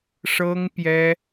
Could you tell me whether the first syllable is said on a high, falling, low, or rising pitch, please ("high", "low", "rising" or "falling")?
high